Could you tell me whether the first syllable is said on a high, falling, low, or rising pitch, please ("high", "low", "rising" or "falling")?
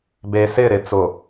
low